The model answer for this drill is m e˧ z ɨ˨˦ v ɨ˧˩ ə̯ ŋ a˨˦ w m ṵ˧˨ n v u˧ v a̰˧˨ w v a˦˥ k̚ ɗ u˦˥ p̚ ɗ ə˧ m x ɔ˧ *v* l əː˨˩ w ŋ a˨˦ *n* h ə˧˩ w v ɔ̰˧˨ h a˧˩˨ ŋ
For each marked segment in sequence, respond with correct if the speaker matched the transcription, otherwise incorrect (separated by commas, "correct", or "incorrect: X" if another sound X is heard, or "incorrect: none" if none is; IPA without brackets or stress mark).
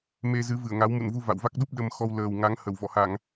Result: incorrect: w, incorrect: ŋ